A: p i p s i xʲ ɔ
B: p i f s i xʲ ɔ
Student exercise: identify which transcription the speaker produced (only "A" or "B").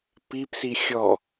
A